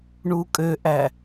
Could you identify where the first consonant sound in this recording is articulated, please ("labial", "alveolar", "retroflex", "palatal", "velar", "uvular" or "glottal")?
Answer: retroflex